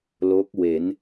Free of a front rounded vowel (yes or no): yes